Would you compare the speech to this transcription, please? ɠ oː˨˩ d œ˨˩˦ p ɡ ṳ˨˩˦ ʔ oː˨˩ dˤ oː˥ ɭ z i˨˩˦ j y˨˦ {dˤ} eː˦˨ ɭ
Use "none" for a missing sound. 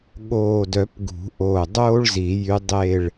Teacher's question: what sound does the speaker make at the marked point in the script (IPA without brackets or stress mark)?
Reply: dˤ